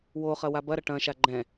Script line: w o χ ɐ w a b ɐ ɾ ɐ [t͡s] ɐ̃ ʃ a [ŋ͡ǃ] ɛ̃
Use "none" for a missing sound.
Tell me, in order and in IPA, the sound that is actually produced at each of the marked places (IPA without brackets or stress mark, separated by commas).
ʈ, ɡ͡ǃ